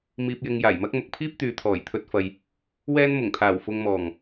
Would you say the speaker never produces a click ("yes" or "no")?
yes